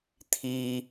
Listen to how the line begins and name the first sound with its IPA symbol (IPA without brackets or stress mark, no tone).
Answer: t̪ʰ